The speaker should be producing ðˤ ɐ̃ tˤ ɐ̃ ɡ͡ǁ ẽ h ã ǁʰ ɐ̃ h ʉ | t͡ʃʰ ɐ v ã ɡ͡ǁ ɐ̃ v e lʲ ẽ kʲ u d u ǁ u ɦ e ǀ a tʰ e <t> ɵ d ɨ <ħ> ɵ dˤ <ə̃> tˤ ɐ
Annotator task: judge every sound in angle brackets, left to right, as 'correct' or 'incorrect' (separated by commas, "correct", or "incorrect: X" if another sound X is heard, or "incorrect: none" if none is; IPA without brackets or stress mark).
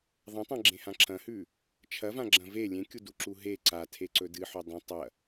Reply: incorrect: ǀ, correct, incorrect: ɐ̃